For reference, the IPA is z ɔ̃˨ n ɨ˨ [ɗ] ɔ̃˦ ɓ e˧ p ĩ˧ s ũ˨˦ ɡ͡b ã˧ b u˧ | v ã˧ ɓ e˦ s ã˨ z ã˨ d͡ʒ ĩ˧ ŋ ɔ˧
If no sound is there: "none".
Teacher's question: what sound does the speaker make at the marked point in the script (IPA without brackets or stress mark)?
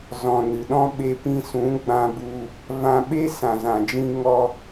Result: ɗ